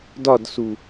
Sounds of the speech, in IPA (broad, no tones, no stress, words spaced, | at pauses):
dɒdsu